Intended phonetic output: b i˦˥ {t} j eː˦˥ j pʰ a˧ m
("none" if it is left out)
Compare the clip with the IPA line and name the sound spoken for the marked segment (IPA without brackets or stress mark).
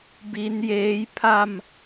n